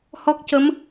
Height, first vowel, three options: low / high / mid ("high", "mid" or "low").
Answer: mid